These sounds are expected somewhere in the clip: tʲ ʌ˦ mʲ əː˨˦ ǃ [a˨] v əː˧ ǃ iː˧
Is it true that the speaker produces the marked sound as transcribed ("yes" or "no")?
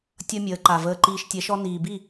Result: yes